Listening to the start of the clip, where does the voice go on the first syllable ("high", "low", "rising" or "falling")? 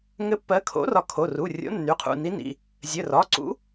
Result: rising